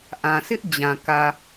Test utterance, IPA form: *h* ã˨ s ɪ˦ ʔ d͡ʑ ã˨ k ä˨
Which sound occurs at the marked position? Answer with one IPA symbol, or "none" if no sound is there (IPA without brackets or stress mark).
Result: ʔ